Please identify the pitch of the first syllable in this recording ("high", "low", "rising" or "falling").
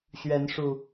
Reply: rising